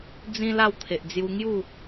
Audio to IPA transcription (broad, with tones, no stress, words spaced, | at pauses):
d͡zĩ˦ la˥˧wt̪ʰe˨ʔd͡zju˧ ŋju˥˧